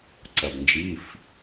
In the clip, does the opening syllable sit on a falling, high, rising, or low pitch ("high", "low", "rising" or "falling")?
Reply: low